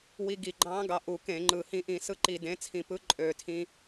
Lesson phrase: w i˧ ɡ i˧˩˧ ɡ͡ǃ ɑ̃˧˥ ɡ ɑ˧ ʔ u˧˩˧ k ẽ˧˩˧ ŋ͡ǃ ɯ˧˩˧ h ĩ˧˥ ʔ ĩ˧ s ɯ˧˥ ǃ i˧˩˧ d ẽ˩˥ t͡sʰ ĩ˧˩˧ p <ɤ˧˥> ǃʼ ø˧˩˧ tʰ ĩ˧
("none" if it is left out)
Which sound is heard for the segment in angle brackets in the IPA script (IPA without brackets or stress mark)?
ɯ˧˥